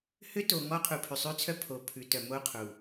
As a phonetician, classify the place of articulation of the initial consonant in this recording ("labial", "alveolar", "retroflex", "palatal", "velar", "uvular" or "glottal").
glottal